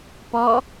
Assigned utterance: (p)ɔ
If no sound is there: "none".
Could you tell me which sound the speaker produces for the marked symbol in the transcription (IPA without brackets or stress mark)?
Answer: p